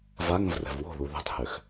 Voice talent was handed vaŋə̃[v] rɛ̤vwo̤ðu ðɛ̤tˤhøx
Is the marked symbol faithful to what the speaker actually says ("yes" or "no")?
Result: yes